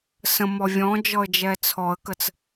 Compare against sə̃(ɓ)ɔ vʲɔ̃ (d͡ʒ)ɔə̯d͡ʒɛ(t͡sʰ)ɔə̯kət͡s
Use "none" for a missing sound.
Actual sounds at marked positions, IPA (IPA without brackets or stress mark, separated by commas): m, d͡ʒ, t͡sʰ